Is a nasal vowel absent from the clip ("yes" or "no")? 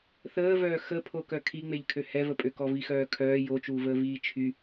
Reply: yes